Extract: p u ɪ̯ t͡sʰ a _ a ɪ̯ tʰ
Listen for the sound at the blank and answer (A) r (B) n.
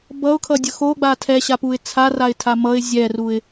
A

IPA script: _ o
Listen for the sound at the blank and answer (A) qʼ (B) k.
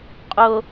A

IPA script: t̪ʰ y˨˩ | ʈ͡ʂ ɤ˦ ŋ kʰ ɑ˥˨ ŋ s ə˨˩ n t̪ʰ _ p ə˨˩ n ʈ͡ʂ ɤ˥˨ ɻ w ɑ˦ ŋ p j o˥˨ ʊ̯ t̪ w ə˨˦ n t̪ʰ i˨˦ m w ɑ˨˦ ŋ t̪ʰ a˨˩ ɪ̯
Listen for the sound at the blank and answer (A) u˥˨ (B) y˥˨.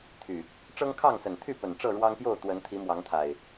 B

